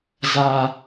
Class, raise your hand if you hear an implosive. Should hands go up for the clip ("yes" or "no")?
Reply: no